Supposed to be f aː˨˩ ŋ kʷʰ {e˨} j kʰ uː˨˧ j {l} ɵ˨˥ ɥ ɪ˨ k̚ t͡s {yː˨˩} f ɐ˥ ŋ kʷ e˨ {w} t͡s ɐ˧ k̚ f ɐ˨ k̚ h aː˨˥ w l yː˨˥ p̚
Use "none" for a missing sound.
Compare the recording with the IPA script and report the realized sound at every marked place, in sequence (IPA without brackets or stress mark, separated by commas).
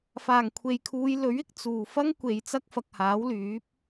e˨, l, uː˨˩, j